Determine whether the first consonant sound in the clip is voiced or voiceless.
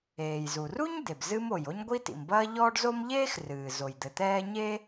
voiced